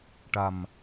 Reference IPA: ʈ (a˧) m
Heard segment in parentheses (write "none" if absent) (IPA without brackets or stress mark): a˨˩